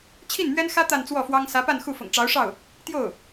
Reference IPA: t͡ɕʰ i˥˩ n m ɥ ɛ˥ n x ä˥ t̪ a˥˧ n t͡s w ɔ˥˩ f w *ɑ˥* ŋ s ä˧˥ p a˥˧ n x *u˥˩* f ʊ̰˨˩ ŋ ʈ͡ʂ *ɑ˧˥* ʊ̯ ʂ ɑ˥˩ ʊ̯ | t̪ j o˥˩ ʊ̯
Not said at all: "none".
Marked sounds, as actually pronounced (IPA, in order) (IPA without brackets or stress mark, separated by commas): ɑ˥, u˥˩, ɑ˧˥